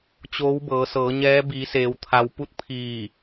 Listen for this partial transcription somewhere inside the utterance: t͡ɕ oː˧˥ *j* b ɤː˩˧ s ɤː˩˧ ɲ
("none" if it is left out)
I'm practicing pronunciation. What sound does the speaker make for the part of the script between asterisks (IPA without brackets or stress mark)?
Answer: w